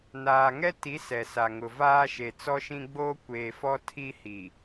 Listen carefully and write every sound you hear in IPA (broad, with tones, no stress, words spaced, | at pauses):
naː˨ŋɛ˦ti˨˦ sɛ˨sa˨ŋʊ˨ vaː˦ʃe˨t͡sɔ˦ʃĩ˦ ɡ͡boː˦kʷeː˨fɔ˦ tʰi˦hi˨